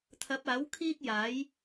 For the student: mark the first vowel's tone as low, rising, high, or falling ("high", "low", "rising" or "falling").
rising